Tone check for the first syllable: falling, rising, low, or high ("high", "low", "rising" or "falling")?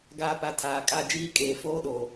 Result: falling